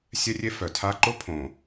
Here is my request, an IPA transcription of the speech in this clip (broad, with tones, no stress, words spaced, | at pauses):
sʲɛ˦rʲe˦fœ˨tʰa˦ ǃo˦pʰõ˨